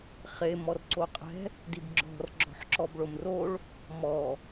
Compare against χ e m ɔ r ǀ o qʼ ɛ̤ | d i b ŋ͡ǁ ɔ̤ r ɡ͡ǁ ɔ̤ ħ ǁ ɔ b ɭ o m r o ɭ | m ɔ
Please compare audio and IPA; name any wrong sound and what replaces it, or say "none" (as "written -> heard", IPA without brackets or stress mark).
ŋ͡ǁ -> ɡ͡ǁ